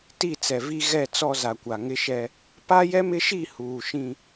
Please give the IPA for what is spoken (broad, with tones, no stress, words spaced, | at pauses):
ti˦˨t͡sɛ˨vi˦ ɣɛ˦˨t͡sɔ˦za˨kʷa˨ ŋɪ˦ʃɛ˦ | pa˦jɛ˦mɪ˦ʃi˦˨ huː˨ʃĩ˦